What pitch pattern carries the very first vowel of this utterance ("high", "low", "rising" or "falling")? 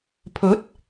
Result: rising